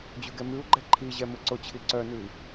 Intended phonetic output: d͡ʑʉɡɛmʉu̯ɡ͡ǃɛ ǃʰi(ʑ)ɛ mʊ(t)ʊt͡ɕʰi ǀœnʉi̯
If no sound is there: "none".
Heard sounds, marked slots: ʑ, ǀ

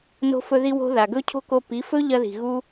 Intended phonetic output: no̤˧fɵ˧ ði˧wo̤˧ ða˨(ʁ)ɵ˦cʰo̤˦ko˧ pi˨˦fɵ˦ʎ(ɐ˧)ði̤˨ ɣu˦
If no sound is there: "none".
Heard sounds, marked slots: ɡ, ɐ˧

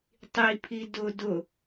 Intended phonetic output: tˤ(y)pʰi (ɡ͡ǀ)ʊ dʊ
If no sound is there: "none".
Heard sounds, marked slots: i, d

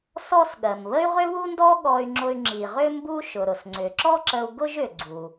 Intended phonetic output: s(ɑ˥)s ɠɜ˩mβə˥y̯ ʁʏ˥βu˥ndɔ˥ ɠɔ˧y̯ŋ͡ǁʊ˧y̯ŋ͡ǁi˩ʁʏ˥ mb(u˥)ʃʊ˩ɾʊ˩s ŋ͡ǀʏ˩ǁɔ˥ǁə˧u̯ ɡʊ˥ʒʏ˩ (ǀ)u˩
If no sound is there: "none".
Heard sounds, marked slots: ɔ˥, u˥, ɡ͡ǀ

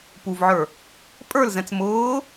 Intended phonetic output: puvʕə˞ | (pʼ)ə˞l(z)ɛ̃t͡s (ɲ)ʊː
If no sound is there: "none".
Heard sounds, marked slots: pʼ, z, m

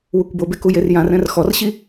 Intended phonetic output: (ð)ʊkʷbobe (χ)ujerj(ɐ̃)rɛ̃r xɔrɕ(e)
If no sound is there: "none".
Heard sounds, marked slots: w, k, ã, i

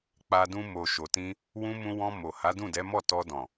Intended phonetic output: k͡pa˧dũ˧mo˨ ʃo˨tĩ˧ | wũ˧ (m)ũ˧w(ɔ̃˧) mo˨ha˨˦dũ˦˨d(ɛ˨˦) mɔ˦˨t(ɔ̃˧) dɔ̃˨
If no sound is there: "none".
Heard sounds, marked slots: m, ɔ̃˧, ɛ˨˦, ɔ˧

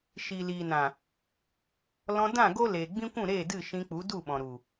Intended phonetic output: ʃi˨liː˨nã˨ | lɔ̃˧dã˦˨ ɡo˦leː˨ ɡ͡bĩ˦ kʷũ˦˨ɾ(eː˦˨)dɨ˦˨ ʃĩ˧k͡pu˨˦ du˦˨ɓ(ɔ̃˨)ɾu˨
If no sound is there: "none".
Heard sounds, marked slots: eː˦˨, ɔ̃˨

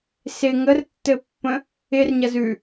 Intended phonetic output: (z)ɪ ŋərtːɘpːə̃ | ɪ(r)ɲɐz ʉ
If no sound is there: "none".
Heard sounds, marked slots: s, r

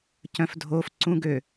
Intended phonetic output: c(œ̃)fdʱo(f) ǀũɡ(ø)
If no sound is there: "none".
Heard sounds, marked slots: œ̃, f, ø

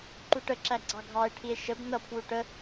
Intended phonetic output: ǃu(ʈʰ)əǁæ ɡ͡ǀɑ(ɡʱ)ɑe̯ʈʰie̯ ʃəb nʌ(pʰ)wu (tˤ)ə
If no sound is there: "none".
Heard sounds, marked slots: ʈ, ɡʱ, pʰ, ʈ

